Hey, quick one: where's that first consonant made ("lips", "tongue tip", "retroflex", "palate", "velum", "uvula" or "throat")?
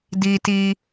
tongue tip